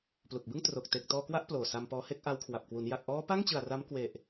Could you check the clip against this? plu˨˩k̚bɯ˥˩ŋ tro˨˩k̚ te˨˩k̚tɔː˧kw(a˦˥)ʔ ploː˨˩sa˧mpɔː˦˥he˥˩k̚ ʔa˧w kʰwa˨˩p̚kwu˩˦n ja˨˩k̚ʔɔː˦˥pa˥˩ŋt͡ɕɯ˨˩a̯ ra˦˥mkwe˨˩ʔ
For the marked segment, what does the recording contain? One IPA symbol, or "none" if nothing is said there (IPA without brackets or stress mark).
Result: a˦˥